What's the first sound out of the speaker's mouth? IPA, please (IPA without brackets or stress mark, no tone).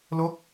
l